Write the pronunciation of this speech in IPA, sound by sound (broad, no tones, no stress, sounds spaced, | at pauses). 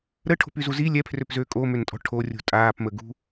ɾ ə ʈʰ o̤ p y z u z i lʲ ɛ pʰ r ø p z øː kʼ o m ø n tʼ ɔ̤ ʈʰ o rʲ ṳ tʼ aː p m ə ɡ ṳ